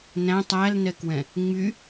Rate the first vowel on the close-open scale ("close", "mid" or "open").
open